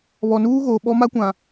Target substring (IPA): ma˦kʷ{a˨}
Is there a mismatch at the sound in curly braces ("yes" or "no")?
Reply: yes